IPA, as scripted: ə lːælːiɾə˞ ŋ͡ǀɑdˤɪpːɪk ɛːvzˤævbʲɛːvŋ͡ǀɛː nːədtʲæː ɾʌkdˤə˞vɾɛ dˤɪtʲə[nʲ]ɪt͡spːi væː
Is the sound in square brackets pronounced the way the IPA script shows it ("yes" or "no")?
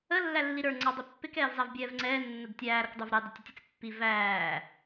no